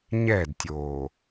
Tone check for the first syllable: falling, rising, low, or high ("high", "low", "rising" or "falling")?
falling